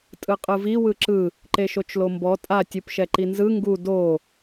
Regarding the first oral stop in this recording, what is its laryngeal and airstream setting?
ejective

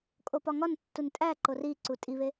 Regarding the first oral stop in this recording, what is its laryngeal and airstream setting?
ejective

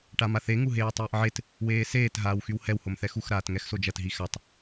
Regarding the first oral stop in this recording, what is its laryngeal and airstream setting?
plain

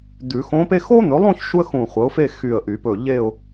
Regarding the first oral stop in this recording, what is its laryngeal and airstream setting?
plain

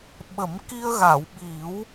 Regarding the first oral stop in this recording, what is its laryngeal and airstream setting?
implosive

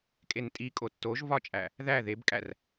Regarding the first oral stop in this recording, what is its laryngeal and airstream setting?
ejective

